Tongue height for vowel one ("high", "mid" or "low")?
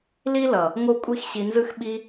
high